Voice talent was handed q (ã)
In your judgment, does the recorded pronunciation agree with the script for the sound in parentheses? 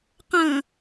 no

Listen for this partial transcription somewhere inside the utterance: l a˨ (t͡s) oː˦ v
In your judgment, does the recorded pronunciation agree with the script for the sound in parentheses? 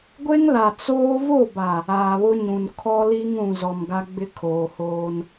yes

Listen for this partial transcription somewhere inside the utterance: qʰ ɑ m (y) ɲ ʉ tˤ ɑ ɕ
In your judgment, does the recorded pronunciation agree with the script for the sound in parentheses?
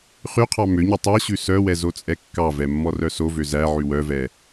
no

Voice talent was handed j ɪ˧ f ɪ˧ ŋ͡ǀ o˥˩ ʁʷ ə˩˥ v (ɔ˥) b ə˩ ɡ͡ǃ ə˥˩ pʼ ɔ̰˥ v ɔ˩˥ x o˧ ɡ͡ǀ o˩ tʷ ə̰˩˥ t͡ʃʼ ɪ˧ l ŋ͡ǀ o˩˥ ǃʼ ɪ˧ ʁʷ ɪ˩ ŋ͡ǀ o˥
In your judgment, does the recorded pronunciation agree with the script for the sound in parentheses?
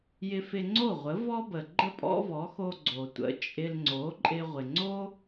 yes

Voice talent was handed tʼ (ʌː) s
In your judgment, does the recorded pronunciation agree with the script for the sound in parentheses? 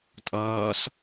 yes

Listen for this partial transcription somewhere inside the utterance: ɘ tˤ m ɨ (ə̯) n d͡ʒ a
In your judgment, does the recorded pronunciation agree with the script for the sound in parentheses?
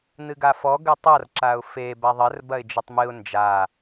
no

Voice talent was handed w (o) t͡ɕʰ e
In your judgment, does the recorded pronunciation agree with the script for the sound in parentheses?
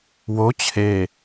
yes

